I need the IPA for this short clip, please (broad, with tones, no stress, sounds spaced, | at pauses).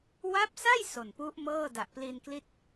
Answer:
w a˦˥ p̚ s a˥˩ j s o˨˩ n p u˦˥ ʔ m ɤː˥˩ d a˨˩ ʔ p l i˧ n k l i˥˩ t̚